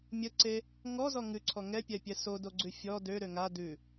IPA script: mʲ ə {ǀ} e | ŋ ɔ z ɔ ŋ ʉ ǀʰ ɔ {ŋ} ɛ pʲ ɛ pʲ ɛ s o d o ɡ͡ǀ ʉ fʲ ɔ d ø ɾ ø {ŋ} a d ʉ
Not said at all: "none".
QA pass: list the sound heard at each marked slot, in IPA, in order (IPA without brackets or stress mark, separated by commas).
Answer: ǀ, ŋ, ŋ